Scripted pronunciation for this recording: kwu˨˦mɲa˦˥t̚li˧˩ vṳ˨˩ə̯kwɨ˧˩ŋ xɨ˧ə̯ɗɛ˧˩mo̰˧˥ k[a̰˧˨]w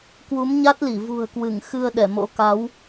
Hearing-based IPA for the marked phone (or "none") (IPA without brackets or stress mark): a˨˦